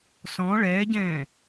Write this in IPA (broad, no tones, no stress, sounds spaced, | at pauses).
s ɔ̃ ɭ ɛː ɟ ɛ̃ː